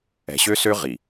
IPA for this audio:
ɛ̤˨ ɕ ø˦ s ø˦ ʁ i˨

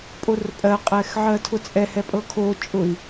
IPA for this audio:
pʼ o r pʼ ɜ qʼ ɛ x ʕ ɜ tʰ ʊ t͡sʼ ɛ h ɛ pʼ ɤ kʰ o t͡ʃʼ ʊ i̯

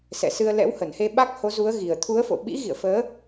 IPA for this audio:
s ɛ̰˧˨ s ɨ˧ ə̯ l ɛ̰˧˥ w h ə˧˩ n h e˧ ɓ a˦˥ k̚ h o˨˦ z u˨˦ ə̯ ɣ i˨˩ ə̯ t̪ʰ u˨˦ ə̯ f o̰˧˨ ɓ ḭ˧˥ ɣ ḭ˧˨ ə̯ f əː˨˦

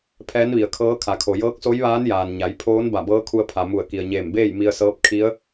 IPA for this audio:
pʰ ɛː˧˥ n ʋ i˩ ə̯ kʰ ɤː˧˥ kʰ a˩˧ kʰ o˩ j ɤː˧˥ k̚ s o˧˥ j ʋ aː˧˥ n j aː˩ n ɲ a˩˧ j pʰ oː˧˥ n b a˧˩ b ɤː˧˥ kʰ u˧ ə̯ pʰ a˩ m u˧˩ ə̯ k i˩ ə̯ ɲ eː˧˩ m b eː˥˨ j m i˧ ə̯ s ɤː˧˥ p̚ kʰ i˧˥ ə̯

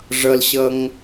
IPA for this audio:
ʐ ʌ l ɕ ʌ ŋ

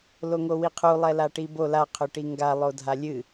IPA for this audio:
l o ŋ o w i qʰ u lˠ ɛ l a ʈ i b o l a qʰ ʏ ʈ i ŋ ɡ a lˠ o dʱ a lʲ ɨ

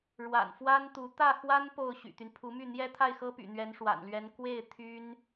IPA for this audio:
ɻ w a̰˨˩ n f w a˥ n t̪ u˧˥ t̪ ä˥˩ x w a˥ n p o˥˩ ʊ̯ ɕ y̰˨˩ t̪ y˦ n pʰ u˧˥ m y˥˩ n̪ j ɛ˥ t̪ʰ a˥˩ ɪ̯ x ɤ˥ p y̰˨˩ n̪ ɥ ɛ˧˥ n ʂ w a̰˨˩ n l ɥ ɛ˧˥ n k w e˥˩ ɪ̯ t̪ʰ y˥ n

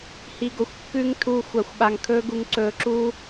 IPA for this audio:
h i˧ ɡ o˨ xʷ kː ʉ˦ ŋ tʰ uː˦ xʷ a˧ xʷ ɓ a˧ ŋ kʰ ɵː˦ ɡ u˧ ŋ ǀ ɵː˧ ǁ uː˦

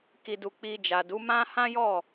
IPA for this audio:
k i˨ d u˨ k͡p i˧ d͡ʒ a˨ d u˨˦ m ã˦ h ã˦ j ɔ˦˨

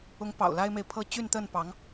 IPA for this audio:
ʊ˧˥ ŋ p ɑ̰˨˩ ʊ̯ l a˥ ɪ̯ m e˨ ɪ̯ pʰ ɤ˥ t͡ɕ y˥˧ n t̪ ə˥˩ n p ɑ˧˥ ŋ

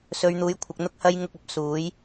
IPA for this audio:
s ɵ˨˧ ɥ n̪ uː˨˥ j kʷʰ ɐ˨ k̚ n̪ ʊ˥ k̚ h ɐ˥ j ŋ ʊ˧ k̚ ɐ˨˥ p̚ s uː˨˥ j

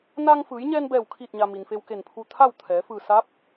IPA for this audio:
n aː˧ ŋ f ɯː˩˧ j ɲ ɛː˧ n b ɛː˧˩ w kʰ iː˧˩ t̚ ɲ a˩ m i˩ n f e˧ w k e˧˩ n pʰ u˧ t̪ʰ a˥˨ w t̪ʰ ɛː˩˧ f ɯː˧˩ s a˧˥ p̚

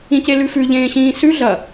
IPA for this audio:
ĩ c e l ʉ f ʉ ʎ ẽː ɕ ĩː s ʉ ɮ ɐ

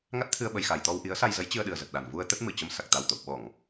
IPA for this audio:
ŋ a˦˥ t̚ t̪ʰ ɨ˧ ə̯ ɓ ə˨˩ j x a˧˩ j t̪ ɔ˧ w ʔ i˨˦ ə̯ s a˧ j z ə˨˦ j t͡ɕ ɨ˧ ə̯ ɗ ɨ˨˩ ə̯ z ə˨˩ t̚ ɗ a˨˩ n v u˧ ə̯ t̪ ə˦˥ t̚ m ɨ˧˩ t͡ɕ ə˧ m s a˨˩ k̚ t̪ a˨˩ w t̪ o̰˧˨ w ɓ ɔ˧˩˨ ŋ

